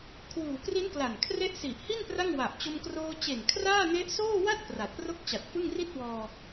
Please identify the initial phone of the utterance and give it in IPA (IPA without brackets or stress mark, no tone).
kʰ